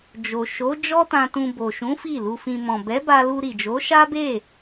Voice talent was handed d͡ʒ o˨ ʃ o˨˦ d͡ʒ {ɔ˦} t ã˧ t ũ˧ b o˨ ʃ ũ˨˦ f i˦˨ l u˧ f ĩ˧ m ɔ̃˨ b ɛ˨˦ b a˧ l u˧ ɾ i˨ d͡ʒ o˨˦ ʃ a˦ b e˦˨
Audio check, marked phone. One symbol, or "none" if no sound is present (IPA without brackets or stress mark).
ɔ˦